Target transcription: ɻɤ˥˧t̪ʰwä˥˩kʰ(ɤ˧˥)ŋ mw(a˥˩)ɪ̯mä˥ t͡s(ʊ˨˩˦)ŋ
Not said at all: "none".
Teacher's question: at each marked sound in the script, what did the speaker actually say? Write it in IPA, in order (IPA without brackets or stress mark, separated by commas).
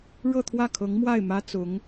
ɤ˧˥, a˥˩, ʊ˧˥